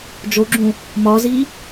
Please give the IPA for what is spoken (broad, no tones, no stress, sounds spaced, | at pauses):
d͡ʒ o ɡ͡ǁ ũ | m ɒ z i